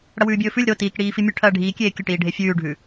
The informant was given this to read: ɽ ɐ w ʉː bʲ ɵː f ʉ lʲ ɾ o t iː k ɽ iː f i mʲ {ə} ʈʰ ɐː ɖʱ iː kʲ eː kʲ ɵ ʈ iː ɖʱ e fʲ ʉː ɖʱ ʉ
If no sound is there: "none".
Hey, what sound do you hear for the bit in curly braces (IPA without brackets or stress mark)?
ʉ